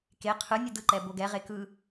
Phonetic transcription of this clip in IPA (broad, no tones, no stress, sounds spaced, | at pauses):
k e qʰ ɯ nʲ ɯ d ɯ ǃ ɛ b o ɡ ɛ ʁ e k ɯ